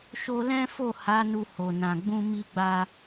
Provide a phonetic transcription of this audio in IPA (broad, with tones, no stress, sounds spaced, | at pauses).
ʃ o˧ l ɛ̃˦ f o˦˨ h a˨˦ n u˧ h o˨ n ã˨ ɡ͡b ũ˧ m i˦ ɡ͡b a˦